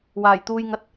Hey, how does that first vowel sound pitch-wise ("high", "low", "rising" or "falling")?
low